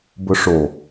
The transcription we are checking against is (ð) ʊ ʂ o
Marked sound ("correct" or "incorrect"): incorrect